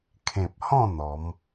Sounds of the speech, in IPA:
kʰ ẽ˨ p̚ h ɔ̃˥˧ n̪ ɔ˨˦ m

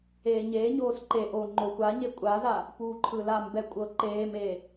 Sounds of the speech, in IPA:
eː ɲ eː ɲ oː s ǃ e ʔ oː ŋ͡ǃ o xʷ a ɲ e kʷʼ a z a | p uː ǃʰ ɯ l a m b ɛ kʷʼ ɤ ǃ eː m eː

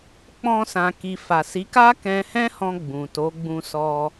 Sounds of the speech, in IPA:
k͡p ɔ̃˧ s ã˨ k i˨ f a˨ s i˨˦ k a˦ k ɛ̃˧ h ɛ̃˦ h ɔ̃˧ ɡ͡b ũ˨ t o˨˦ ɡ͡b ũ˧ s ɔ˧

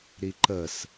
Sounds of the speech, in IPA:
ɾ i ǃ ə s

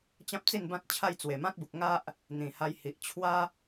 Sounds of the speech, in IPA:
t͡ɕ ã˦ p̚ t͡s i˥˧ n b ã˦ t̚ t͡ɕʰ a˥˧ j t͡s w e˨˩ m ã˦ t̚ b u˨ k̚ ŋ a˦ ʔ | n̪ ĩ˨˩ h a˧ j h i˨ ʔ t͡ɕʰ w a˦

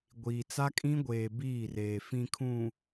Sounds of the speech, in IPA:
ɡʷ iː˨ t͡s a˦ kʼ ĩ˦ ɡʷ eː˨ b iː˦˨ r eː˨ f ĩ˨ kʰ ũ˨

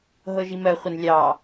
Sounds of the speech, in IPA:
ɦ ɤ ʒ i m ɜ χʷ ə n lʲ ɑ

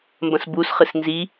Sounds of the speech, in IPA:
m b ɐ̃ s b u s χ ɨ s n z i

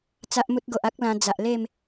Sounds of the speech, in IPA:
t͡s a˦ ʔ m u˦ t̚ ɡ o˨ ʔ a˦ k̚ l ã˧ d͡z a˨ ʔ l e˥˧ m

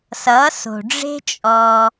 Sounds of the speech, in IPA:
s ʌ˨˦ s o̤˨ ɖ͡ʐ e̤˦ t͡ʃʼ ɔ˧

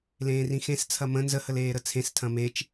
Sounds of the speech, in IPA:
l ẽː r ĩ x ẽ s t͡sʰ ɐ m ə̃ n z ə h ə l eː ɾ ə t͡sʰ ẽ s tʰ ɐ̃ m e t͡ʃ

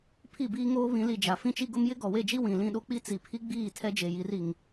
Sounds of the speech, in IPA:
pʰ i˦˨ b iː˦ ŋ oː˦ β ĩ˨˦ l i˨ d͡ʒ a˨ f ĩ˦ t͡ʃ i˦ ɡ ʊ˦ m j ɪ˦ ɡ ɔ˨ w e˦˨ d͡ʒ i˦ w ĩ˨ l ĩ˦˨ ɗ o˦ k͡p i˦ t͡s i˨ pʰ i˦ ɡ͡b iː˦˨ tʰ ɛ˦ d͡ʒ e˨ j i˨˦ r i˨ ŋ

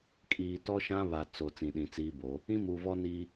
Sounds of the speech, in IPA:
kʼ iː˨ t ɔ˦ ʃ ã˦ β a˨ t͡s o˨ t͡s ĩ˨ ɗ ĩ˨ t͡s iː˦ b o˨˦ | ĩ˦ m u˨ v ɔ˦ n iː˦

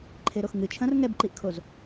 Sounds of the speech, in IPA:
ǃʰ e ɾ o x ŋ ɨ t͡ʃʰ ɐ̃ r ŋ ɛ b ǃ i ʔ kʰ o z

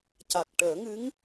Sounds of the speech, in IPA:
c a˨˩ k̚ ʈ əː˨˩˦ ŋ ɨ˧˥ ŋ

